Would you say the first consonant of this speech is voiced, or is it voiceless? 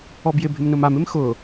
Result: voiced